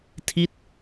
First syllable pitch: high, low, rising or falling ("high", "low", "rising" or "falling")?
falling